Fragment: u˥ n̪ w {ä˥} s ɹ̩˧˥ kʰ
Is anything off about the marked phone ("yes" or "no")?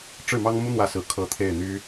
yes